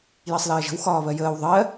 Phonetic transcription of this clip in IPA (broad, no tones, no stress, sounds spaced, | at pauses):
j ɜ sˤ l ɜː ʒ ə̤ w x ɒː β ɜ j əː w ðˤ ɜ